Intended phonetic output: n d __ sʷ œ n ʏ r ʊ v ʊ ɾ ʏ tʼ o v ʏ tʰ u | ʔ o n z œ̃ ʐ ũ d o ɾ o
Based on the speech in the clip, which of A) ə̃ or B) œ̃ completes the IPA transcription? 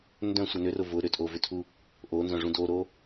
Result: B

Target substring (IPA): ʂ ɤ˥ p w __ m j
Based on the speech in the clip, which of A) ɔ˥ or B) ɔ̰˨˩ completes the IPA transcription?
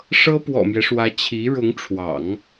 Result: B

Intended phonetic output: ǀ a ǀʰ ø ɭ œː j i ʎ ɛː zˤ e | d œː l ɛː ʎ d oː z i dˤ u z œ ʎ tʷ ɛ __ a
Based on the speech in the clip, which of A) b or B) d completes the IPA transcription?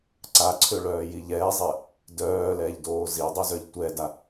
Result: B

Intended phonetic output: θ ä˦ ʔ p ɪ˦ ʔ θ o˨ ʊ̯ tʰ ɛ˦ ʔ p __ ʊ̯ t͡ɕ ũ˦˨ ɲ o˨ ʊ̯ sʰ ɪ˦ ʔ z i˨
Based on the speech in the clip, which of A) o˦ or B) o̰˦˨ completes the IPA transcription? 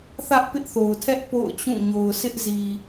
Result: B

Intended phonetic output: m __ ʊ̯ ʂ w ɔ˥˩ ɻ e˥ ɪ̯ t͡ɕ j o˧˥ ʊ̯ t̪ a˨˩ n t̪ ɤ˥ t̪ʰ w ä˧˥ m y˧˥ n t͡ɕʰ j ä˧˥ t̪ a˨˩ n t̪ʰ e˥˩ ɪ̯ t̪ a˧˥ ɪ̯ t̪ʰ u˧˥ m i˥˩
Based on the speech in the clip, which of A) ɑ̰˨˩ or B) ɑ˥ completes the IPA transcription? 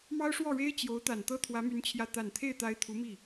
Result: B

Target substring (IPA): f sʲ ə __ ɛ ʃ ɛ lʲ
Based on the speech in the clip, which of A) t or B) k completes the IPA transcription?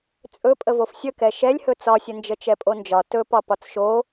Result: B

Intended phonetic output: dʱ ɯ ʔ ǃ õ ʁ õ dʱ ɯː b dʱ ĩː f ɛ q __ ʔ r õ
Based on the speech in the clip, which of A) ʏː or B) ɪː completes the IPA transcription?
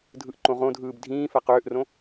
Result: A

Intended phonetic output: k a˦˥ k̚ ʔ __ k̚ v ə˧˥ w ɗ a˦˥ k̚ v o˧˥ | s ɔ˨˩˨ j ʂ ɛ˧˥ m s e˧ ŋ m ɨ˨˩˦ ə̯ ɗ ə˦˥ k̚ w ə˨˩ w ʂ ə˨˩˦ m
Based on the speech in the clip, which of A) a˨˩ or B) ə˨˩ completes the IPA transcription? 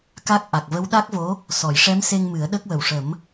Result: A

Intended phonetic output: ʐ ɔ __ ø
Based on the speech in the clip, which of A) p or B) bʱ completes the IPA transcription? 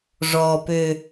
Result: A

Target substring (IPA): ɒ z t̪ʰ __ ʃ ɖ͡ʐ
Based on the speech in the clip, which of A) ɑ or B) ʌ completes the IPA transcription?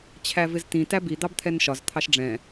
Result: A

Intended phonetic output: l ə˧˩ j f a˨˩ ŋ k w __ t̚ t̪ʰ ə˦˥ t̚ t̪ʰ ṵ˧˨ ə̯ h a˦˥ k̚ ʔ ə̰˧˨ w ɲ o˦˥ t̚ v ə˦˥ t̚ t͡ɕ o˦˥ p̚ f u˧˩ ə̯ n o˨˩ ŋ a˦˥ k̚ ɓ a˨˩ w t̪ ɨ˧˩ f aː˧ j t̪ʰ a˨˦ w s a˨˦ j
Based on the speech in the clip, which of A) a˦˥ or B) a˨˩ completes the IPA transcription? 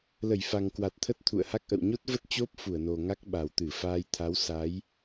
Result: B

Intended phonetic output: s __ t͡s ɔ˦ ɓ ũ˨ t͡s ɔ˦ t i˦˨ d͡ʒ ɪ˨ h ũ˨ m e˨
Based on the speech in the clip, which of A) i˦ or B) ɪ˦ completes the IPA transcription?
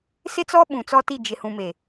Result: B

